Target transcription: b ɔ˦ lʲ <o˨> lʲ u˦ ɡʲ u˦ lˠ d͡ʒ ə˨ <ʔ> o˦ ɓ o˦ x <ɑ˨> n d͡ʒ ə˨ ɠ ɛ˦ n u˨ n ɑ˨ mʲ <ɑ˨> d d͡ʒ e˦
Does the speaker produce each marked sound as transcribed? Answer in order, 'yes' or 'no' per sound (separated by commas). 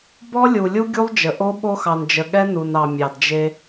no, yes, yes, yes